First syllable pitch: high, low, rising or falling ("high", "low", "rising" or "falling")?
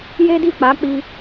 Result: high